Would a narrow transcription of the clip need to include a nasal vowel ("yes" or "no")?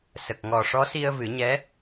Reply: no